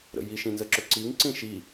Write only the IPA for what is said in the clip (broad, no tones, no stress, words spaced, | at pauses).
ɾə̰ji ʃĩnzəǁɵǀiŋ ǀĩʃi